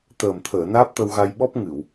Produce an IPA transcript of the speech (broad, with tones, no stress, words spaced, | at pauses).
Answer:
t̪əː˨˩m t̪ʰəː˨˩˨ naː˦˥p̚t̪ə˧wɣa˧jɓɔ˦˥p̚ ŋɨ˨˩˨w